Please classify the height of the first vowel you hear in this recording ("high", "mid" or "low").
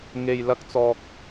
mid